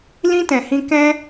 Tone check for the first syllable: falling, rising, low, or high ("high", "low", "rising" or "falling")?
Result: high